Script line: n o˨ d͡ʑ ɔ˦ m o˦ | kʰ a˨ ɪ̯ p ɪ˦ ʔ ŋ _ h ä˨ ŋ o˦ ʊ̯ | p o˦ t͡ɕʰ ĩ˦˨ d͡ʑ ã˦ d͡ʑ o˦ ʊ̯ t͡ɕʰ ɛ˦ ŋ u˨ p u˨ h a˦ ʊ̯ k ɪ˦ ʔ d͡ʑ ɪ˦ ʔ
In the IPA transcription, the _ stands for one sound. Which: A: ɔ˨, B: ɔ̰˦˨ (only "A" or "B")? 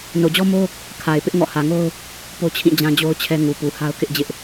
B